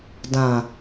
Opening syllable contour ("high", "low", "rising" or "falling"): low